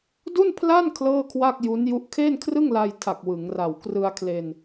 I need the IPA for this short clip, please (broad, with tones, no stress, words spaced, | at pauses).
du˥˩npʰla˥˩n kʰlɤː˥˩kʰwa˥˩k̚ ju˦˥nju˦˥ʔ kʰe˥˩nkʰrɯ˥˩ŋla˧jtʰa˨˩k̚ wɯ˩˦ŋra˨˩w krɯ˧a̯kʰle˧n